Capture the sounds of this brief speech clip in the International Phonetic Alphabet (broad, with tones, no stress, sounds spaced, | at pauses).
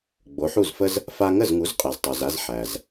ɡ͡b o˩˥ ħ u˥˩ z f ə˥ z | f a˧ ŋ ə˥˩ z ŋ u˩˥ z qʼ ɛ˩ z tˤ o˩ z a˧ z ħ æ˩ z